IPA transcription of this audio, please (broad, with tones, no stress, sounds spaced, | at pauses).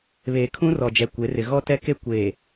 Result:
β eː˨ kʰ ũ˦ r ɔ˨ d͡ʒ ɛ˨ kʷ e˨˦ r ɪ˨ ɣ ɔ˦ t ɛ˦ k e˦ kʷ eː˨